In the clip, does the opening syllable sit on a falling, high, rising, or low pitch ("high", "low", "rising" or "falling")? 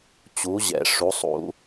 rising